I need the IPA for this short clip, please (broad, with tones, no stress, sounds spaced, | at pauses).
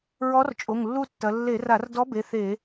ɹ ɔ˧˥ r t͡ʃʼ o˩˧˩ ŋ lː u˦˨ tː ɐ˩˧ lː e˧˩˧ r a˧˩˧ r d ɔ˧˥ b e˩˧˩ θ e˧˩˧